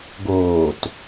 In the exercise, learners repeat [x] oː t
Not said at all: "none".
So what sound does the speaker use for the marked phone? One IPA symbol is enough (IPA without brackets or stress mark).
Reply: ɡ